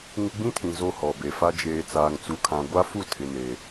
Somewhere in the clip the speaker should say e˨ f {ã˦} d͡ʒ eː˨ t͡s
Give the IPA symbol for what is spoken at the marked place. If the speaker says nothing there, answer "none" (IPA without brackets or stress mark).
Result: a˦